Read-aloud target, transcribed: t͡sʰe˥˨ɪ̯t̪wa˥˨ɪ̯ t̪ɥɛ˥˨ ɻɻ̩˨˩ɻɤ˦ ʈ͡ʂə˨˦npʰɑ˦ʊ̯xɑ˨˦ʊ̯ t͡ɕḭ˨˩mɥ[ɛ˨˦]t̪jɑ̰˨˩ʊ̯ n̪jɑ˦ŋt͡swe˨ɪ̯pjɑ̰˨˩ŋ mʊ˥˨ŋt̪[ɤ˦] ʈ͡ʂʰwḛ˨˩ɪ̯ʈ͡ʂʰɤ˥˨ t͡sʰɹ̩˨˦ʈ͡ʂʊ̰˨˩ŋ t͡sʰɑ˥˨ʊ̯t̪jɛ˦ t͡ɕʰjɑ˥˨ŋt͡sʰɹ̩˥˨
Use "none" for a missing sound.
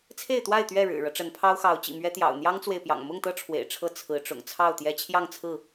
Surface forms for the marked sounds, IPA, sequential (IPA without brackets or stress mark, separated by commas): ɛ˦, ɤ˦